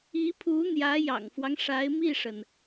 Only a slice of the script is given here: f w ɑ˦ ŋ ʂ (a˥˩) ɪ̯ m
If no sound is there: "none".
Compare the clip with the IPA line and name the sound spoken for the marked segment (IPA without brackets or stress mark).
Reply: a˧˥